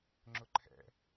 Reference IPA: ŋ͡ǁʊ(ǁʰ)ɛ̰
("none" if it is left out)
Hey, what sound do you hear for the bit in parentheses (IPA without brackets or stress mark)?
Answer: ǃʰ